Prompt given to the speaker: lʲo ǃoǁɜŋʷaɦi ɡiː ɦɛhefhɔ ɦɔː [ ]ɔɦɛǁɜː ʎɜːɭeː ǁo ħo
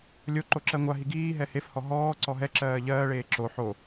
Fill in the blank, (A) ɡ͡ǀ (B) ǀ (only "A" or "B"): B